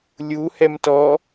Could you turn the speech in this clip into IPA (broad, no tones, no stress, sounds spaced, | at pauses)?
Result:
lʲ u h ɛ m t ɔ